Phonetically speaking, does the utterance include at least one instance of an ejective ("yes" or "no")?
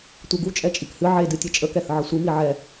yes